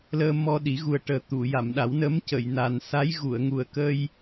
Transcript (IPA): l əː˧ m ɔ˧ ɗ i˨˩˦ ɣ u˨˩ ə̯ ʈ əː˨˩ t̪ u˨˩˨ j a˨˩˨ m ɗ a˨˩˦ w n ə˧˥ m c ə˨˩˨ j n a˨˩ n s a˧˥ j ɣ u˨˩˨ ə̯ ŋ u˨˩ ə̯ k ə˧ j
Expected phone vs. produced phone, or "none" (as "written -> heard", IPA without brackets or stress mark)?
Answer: none